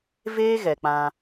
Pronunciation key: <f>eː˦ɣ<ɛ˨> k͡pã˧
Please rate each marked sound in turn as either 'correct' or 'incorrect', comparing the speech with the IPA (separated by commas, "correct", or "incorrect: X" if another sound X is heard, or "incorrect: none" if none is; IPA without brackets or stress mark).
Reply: incorrect: v, correct